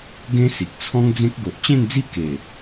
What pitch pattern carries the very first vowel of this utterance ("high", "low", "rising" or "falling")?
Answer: high